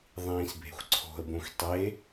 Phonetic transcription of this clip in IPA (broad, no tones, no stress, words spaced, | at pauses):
ðˤĩːsbʱe̤xʷǀʰo̤ə̯bõxʷ tˤe